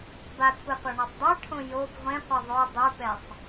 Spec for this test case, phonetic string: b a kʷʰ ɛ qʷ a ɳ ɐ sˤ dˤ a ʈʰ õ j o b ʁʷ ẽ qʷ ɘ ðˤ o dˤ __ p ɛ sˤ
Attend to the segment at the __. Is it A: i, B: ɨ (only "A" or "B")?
B